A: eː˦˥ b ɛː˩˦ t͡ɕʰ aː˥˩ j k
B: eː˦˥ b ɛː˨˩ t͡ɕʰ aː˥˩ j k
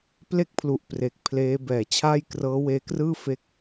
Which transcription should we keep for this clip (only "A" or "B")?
A